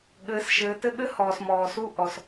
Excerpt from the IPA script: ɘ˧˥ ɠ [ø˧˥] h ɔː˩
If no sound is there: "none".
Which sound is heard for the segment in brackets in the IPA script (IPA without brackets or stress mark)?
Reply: ɘ˧˥